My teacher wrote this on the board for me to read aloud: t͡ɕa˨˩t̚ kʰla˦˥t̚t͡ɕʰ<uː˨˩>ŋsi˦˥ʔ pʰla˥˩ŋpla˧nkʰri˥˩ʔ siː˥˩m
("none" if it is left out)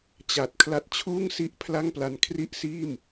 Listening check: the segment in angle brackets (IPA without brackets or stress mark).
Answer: uː˥˩